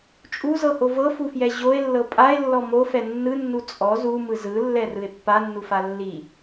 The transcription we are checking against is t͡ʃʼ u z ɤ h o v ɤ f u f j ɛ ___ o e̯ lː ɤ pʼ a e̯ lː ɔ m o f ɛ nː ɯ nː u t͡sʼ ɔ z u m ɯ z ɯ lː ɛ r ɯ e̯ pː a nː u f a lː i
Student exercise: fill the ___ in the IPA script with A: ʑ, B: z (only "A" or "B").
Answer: A